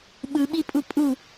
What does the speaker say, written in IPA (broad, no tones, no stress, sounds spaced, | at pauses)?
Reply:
ɓ ɯ ɓ i pʼ u pʼ u